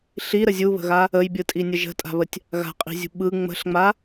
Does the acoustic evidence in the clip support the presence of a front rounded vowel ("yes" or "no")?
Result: no